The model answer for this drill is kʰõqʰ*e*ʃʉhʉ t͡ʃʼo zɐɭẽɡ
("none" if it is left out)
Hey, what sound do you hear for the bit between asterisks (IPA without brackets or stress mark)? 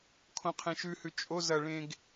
ẽ